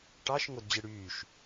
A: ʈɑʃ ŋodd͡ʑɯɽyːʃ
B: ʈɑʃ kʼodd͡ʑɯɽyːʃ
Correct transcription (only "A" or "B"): A